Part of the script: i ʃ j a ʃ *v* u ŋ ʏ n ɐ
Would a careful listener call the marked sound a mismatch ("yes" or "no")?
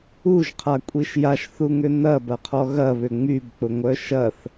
yes